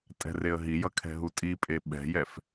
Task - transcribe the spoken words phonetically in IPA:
tʼɛ̤reə̯ɦijʌ kʰɛ̤ɦutʼipʼe ɓɛ̤jɛf

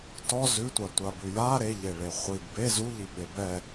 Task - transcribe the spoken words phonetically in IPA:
tɔ zʉtʷatʷabʉ ja ɾeʎeɭe χʷiɡ be zuʎiɓe bɛ

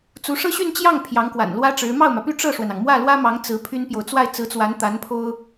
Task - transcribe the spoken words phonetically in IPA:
t͡su˧˥ʂɤ˥ɕy˥˧nt͡ɕjɑ˥˩ŋ pʰjɑ˧˥ŋkwa̰˨˩nlwä˥ʈ͡ʂɻ̩˧˥ mɑ˥˩ʊ̯mä˩py˥˧ ʈ͡ʂɤ˥˩ʂwə˩nɑ˩ŋ mwä˥˩lwä˥mɑ˧˥ŋ t͡sɹ̩˧˥pʰy˥npjo˨ʊ̯ t͡swa˥˩ɪ̯t͡sɹ̩˧˥t͡swa˧˥n t̪a˧˥npʰo˥ʊ̯

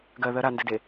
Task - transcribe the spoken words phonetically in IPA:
ɡɜðɜ ɾandɘde

